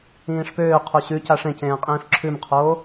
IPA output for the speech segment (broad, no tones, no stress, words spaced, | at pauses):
ĩːʂpøː qʰoɕʉ caʂẽcẽː qʼĩːfǁʰʉmqʰoː